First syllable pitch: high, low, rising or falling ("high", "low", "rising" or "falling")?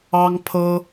high